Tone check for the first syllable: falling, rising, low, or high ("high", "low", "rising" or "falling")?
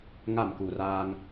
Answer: falling